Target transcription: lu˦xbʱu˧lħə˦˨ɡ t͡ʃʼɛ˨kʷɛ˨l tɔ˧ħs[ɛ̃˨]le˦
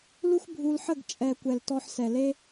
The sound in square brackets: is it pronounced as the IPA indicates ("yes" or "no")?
no